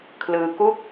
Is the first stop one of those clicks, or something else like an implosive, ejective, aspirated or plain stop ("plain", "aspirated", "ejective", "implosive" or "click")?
aspirated